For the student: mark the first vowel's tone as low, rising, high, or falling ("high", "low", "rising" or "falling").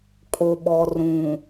low